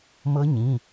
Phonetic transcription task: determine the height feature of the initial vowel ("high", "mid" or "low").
mid